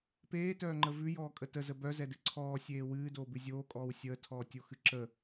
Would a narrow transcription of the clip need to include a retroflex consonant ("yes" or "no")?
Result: no